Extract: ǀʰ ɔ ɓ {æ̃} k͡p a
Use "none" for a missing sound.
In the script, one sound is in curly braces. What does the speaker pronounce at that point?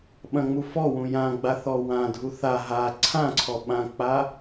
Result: ã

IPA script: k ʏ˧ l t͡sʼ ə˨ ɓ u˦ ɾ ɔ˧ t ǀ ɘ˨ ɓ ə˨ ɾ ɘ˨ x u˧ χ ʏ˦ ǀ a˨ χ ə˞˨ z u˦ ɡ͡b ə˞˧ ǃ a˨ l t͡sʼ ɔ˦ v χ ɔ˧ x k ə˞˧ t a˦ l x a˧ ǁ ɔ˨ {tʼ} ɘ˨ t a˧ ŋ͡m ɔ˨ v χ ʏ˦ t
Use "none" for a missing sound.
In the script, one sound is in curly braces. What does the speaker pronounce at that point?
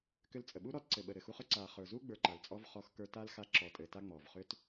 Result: tʼ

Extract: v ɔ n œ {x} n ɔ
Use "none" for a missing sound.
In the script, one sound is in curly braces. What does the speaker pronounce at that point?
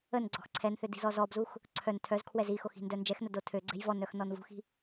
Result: x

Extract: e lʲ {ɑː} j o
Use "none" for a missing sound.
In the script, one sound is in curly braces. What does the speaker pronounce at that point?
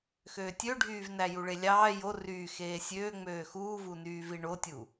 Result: ɑː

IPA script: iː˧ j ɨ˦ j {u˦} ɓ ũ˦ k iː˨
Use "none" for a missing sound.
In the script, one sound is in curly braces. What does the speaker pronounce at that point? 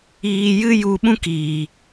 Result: u˧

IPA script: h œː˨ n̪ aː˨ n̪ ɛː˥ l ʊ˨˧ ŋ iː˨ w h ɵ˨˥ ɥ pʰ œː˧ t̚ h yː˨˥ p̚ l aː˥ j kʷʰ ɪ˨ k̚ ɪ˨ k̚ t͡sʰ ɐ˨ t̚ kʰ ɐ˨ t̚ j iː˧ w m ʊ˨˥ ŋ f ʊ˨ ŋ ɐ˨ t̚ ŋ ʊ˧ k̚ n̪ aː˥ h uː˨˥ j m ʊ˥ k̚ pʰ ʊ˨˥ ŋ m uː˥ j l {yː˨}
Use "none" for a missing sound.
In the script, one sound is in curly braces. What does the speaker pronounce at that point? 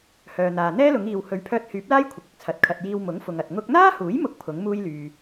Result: yː˨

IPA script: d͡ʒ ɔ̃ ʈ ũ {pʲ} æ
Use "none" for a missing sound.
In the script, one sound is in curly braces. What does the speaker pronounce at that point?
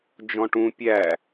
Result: pʲ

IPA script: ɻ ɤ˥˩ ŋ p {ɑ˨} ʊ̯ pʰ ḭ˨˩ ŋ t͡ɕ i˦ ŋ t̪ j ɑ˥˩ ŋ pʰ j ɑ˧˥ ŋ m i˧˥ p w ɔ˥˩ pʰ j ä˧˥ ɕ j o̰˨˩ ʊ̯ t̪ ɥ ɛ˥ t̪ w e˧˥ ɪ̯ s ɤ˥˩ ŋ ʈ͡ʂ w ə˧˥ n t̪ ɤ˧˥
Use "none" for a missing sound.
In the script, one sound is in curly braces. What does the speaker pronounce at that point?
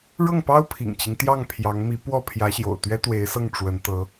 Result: ɑ˥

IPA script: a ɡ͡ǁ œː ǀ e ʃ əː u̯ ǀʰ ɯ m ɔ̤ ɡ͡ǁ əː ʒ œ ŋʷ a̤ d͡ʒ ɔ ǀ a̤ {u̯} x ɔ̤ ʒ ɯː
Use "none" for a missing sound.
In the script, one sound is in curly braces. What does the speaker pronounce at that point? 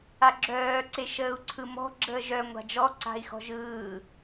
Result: i̯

